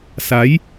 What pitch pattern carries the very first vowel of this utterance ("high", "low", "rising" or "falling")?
rising